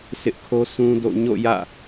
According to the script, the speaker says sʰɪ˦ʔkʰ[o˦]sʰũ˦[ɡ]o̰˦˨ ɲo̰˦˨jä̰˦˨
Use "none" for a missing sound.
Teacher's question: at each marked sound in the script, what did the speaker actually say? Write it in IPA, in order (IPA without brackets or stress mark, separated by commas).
o˦, d